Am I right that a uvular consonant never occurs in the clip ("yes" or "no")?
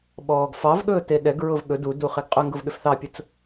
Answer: no